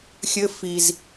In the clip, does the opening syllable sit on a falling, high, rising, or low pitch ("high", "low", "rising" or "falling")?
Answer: high